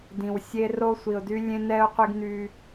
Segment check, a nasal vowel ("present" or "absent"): present